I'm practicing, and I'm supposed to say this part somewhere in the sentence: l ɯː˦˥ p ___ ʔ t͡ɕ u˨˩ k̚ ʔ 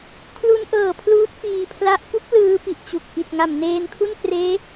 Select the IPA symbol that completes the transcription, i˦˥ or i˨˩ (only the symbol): i˨˩